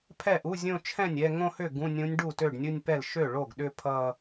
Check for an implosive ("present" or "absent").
present